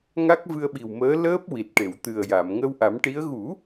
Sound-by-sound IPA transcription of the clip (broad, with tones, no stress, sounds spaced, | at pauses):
ŋ a˦˥ k̚ v ɨ˧ ə̯ ɓ i˨˩ w m əː˧˥ l əː˦˥ p̚ w i˨˩ t̚ ʈ e˨˩˨ w t̪ ɨ˨˩ ə̯ j a˨˩˨ m ŋ ə˧ w ʔ a˨˩˦ m ʈ i˧˥ ə̯ ɣ u˨˩˦